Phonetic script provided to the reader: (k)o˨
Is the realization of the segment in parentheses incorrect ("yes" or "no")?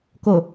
no